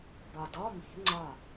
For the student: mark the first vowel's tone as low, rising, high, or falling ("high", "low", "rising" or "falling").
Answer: low